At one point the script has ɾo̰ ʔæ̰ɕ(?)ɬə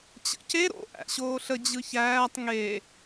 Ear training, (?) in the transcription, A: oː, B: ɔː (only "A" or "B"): A